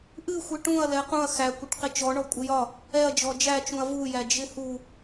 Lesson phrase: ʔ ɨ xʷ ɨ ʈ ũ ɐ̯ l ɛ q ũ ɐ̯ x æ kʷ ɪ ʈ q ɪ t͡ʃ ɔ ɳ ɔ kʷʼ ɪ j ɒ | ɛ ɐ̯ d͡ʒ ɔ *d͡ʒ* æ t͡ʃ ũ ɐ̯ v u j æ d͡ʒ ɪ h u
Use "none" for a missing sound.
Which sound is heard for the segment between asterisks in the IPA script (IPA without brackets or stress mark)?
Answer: d͡ʒ